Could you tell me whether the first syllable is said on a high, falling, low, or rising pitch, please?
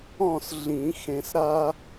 falling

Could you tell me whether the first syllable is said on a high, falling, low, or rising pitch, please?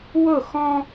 falling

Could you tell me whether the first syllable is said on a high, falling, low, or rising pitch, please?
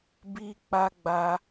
high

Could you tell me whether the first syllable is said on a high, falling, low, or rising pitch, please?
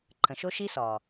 low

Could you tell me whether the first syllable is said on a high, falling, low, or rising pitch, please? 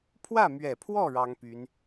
falling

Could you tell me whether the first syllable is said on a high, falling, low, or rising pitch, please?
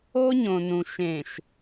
high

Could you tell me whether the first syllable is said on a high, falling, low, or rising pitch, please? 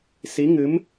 rising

